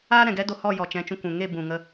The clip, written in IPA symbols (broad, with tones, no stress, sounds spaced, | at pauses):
aː˦ ɾ ɛ̃˨ ɡ ɛ˦ d o˧ h ɔ˦˨ j ɔ˨ t͡ʃ ɛ̃˨˦ t͡ʃ ũ˨ kʷ ũ˨ ŋ e˦˨ b ũ˨ ŋ ə˧